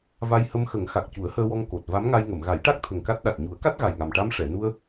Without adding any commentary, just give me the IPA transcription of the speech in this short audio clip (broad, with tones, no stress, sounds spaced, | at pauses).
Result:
v a˧ j h ə˧ m x ə˨˩˦ ŋ x a˨˩ k̚ c u˨˩˦ ə̯ h əː˧ w ɔ˧ ŋ k o˨˩ t̚ v a˧˥ m ŋ a˧ j ŋ ə˨˩˨ m ɣ a˨˩˦ j ʈ a˦˥ k̚ t̪ʰ ə˨˩ ŋ k a˦˥ t̚ ɗ a˨˩ t̚ ɲ u˨˩˦ ə̯ k a˦˥ t̚ ɣ a˨˩ j ŋ a˨˩ m ʈ a˧ m ʂ ɛ˨˩˨ n u˧ ə̯